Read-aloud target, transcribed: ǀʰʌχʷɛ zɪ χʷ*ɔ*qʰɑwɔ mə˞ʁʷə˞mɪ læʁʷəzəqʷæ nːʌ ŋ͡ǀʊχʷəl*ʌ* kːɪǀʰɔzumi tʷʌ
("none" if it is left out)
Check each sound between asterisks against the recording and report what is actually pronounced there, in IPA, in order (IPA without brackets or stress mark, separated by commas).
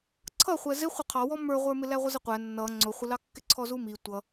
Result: ʌ, ɑ